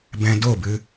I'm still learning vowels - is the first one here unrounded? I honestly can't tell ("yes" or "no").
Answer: yes